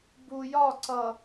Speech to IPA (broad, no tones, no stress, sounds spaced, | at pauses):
b u j ɒ ǀ ʌ